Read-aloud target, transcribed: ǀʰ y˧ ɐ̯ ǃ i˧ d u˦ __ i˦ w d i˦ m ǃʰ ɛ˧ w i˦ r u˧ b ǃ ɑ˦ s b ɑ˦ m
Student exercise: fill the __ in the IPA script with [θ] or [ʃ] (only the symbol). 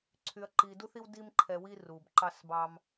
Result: θ